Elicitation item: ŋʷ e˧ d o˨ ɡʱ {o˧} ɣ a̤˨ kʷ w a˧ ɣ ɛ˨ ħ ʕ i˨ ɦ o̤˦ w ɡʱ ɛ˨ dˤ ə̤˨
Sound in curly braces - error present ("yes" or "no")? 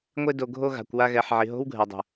no